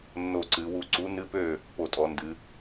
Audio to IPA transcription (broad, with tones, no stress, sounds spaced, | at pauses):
nː o˧˩ ǀ ɨ˩˧ w u˧˩ ǀ u˨˥ n ɨ˧˥˧ p ø˥˩ | p o˧˩ tʼ ɔ˩˧ n d ɨ˩˧